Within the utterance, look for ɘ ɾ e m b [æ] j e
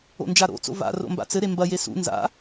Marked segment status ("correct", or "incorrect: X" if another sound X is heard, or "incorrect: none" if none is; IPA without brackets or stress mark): incorrect: ɐ